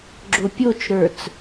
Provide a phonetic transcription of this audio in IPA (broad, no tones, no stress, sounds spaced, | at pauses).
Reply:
ɡ͡ǁ o pʲ o t͡ʃ ɾ ə˞ t͡s